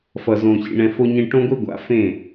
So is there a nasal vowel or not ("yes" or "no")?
yes